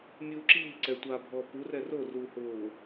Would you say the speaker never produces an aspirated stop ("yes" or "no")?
yes